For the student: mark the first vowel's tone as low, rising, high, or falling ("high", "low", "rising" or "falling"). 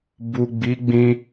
low